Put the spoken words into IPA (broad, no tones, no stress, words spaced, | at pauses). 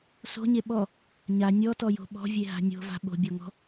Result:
so̤ɲe ɓɔ | ɲa nʲɔtɔjo̤ ɓɔ̤vʲeɦa̤ nʲo̤va̤ ɓo̤bʲɔŋɔ̤